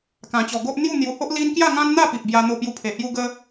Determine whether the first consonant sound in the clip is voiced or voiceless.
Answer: voiceless